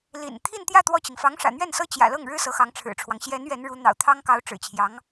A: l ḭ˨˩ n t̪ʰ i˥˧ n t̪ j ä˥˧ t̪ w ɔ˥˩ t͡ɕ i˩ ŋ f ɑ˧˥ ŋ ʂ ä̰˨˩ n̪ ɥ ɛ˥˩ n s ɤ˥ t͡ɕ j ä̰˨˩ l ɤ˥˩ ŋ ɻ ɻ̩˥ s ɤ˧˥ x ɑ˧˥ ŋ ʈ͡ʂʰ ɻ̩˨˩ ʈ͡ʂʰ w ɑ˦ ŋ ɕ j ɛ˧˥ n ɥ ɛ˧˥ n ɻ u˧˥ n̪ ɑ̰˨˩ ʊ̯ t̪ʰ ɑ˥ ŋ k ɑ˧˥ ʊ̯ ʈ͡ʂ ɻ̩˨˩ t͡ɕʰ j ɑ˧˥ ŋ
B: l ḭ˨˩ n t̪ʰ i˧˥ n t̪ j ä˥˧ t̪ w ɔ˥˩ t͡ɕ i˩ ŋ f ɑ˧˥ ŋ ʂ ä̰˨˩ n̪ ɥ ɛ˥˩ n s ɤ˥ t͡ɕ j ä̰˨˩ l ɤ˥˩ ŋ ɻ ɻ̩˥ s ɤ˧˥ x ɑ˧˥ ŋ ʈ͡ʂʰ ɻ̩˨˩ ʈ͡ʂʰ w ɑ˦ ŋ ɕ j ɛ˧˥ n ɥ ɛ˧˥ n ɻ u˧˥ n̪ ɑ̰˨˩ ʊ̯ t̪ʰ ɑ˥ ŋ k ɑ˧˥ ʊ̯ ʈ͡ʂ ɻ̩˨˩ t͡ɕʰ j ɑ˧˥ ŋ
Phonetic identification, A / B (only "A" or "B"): A